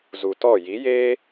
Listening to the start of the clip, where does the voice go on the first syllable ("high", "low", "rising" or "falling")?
low